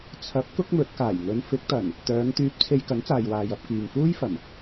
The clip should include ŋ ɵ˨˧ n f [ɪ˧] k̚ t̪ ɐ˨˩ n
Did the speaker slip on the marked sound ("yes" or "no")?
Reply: yes